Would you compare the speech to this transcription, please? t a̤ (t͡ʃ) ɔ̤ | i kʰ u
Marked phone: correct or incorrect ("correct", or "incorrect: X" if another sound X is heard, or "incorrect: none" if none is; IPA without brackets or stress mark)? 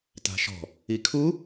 incorrect: ʃ